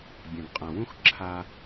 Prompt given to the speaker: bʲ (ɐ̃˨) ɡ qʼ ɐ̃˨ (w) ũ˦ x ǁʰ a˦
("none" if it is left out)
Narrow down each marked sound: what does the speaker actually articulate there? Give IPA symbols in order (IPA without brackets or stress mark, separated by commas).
ɐ̃˨, w